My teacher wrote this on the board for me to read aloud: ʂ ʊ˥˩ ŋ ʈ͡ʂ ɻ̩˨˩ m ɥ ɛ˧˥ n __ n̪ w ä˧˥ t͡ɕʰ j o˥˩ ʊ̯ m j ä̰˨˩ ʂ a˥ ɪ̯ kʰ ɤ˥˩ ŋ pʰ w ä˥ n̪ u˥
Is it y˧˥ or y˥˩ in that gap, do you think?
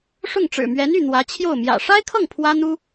y˥˩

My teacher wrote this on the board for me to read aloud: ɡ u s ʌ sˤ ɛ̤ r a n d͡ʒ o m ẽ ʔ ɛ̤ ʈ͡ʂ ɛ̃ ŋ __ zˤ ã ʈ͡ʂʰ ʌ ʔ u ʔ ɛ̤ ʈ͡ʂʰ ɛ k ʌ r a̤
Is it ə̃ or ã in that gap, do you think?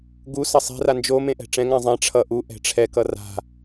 ã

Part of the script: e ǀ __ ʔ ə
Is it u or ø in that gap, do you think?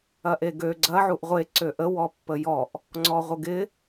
ø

